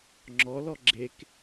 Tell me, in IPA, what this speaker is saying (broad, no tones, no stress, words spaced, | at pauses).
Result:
ŋ͡ǁɔlɔ ɡ͡ǁek